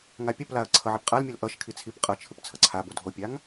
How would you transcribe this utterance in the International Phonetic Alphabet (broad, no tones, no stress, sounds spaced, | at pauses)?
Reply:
ŋ a pʲ ʌ p l a ɐ̯ ǀʰ ʌ ʕ ɛ p qʼ a l mʲ o l ʔ ʌ ʃ kʰ i t͡sʰ i p qʼ ʌ t͡ʃʰ ɯ p t͡sʰ ʌ ǀʰ a b o dʱ o pʲ a ŋ